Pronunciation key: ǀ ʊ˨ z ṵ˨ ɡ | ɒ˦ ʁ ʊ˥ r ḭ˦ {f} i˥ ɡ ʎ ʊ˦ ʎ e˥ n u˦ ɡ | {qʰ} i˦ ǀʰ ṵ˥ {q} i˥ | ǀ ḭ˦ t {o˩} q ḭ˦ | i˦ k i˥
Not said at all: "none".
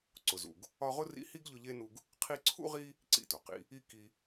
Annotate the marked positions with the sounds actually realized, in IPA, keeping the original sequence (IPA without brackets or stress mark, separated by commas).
h, qʰ, ʁ, o˩